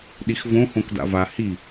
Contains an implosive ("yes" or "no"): yes